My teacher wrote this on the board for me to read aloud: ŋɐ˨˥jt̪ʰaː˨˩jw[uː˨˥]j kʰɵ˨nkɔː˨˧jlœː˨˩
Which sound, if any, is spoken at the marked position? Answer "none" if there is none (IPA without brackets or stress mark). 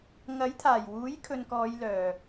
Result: uː˨˥